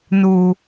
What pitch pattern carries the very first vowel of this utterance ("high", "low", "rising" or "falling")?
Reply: high